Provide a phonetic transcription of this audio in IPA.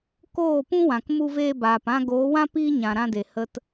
koː˦˨pũ˦wã˨k mu˧veː˧baː˨pã˧ ɡoː˨˦wã˦ piː˦ɲã˨ɾã˧de˨ hə˨t

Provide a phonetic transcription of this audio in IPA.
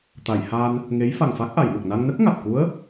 t̪a˨˩˨j haː˧n | ŋe˧˥j fa˨˩ŋfa˦˥k̚ʔa˨˩˨jmə˨˩k̚ na˧ŋnə˦˥k̚ ŋa˨˩t̚ ku˧˥ə̯

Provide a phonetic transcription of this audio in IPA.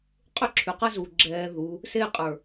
qʼʏ˦ǁʰy˨qɐ˦zu˨ ɡ͡ǁɛː˧ðu˨˦ | se˦˨qʼə˞˨

